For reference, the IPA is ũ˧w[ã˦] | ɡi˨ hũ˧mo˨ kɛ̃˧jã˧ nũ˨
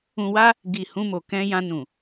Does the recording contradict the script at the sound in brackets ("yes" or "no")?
yes